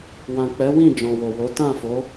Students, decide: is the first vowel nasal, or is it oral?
nasal